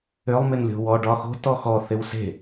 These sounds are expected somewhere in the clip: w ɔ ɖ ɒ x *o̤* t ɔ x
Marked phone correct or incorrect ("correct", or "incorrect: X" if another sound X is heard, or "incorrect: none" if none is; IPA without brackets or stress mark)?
correct